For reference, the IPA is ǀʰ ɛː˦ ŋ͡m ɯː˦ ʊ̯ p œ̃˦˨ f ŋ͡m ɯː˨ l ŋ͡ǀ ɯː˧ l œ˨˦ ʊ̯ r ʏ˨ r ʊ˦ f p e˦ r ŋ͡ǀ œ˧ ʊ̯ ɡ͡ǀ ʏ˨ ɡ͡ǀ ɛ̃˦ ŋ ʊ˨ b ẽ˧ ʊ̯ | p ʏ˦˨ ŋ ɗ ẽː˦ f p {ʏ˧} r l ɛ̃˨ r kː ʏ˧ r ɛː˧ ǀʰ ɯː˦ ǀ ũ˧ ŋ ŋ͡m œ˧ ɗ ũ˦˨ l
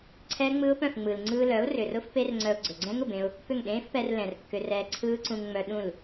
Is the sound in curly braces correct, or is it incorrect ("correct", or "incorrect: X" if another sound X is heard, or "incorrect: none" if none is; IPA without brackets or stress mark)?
incorrect: ɛ˧